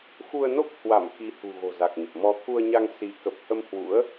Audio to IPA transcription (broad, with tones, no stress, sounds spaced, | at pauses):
x u˧ ə̯ n o˦˥ k̚ h w a˧˩ m x i˨˦ h ṳ˨˩ ɣ o̤˨˩ z a˨˩ k̚ ɲ ə˨˩ p̚ m ɔ˨˦ t̪ʰ u˧ ə̯ ɲ a˧ ŋ s i˨˦ k ə˨˩ p̚ h ə˧ m h w ṵ˧˥ ə̯